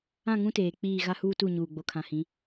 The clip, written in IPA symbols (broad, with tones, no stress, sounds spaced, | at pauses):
ã˦˨ ŋ ũ˦ t eː˨ k͡p iː˦˨ ɣ a˦ h uː˦ t u˦˨ ɲ uː˨ ɡ͡b o˨ kʰ ã˨ h ĩ˨˦